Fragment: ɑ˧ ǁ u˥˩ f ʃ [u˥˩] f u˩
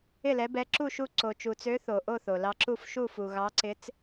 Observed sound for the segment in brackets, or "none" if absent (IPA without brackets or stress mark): u˥˩